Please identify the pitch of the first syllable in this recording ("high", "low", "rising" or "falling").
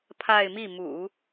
falling